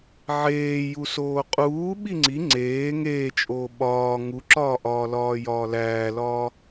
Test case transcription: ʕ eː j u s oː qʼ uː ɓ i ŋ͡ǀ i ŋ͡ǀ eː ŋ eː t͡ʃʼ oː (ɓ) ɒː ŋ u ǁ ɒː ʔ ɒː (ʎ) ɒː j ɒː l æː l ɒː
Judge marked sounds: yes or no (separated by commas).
yes, no